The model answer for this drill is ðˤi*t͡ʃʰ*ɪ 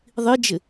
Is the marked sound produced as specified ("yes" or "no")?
no